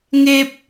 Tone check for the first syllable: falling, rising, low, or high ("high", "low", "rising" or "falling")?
high